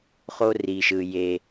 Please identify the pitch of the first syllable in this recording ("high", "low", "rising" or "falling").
high